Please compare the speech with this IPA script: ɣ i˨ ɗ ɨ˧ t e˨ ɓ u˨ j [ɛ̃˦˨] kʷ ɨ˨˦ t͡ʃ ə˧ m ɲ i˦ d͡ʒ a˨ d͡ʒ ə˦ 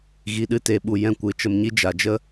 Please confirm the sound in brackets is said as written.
yes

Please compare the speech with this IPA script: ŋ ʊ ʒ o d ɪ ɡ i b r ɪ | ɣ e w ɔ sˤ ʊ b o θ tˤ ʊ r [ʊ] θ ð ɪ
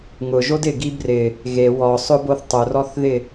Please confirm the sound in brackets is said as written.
no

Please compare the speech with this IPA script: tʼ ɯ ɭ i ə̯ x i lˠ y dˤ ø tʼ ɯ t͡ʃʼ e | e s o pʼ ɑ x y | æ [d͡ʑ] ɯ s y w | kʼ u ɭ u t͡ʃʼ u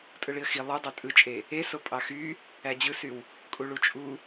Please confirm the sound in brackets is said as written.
yes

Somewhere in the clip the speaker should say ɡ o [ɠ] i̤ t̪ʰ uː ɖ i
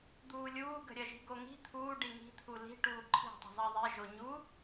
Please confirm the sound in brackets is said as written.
no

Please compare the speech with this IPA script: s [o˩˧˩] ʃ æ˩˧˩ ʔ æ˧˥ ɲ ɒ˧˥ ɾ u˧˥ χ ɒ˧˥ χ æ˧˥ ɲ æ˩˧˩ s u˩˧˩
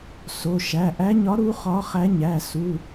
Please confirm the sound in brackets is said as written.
yes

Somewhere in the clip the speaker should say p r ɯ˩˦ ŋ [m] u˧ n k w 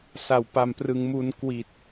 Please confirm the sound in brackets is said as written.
yes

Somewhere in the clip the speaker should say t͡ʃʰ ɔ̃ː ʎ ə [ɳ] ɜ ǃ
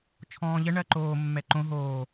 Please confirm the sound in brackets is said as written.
yes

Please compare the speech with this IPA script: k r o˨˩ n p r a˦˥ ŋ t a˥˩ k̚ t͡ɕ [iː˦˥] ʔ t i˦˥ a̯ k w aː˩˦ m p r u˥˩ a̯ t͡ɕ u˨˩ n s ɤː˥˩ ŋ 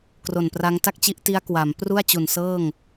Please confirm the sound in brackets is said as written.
no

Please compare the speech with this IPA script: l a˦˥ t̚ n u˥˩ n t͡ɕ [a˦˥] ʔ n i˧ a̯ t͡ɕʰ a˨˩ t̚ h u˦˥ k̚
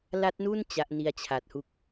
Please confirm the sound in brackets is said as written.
yes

